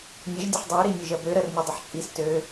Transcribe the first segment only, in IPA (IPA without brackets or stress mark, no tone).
nʲ